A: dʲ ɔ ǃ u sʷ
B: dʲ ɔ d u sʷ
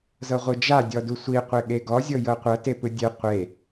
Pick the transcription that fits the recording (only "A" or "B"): B